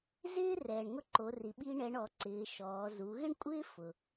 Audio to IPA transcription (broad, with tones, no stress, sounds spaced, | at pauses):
z ɪː˥ r ɛː˩ ɳ ŋ ʊ˥ ǃ o˩˧ r i˩ ɓ i˥ ɳ ɛ˧˥ ɳ ɔ˩˧ ǀ ɪː˩˧ ʃ ɔː˩˧ z u˩˧ ɣ ɪ˥ ɳ kʷʼ ɪː˥ f ʊ˩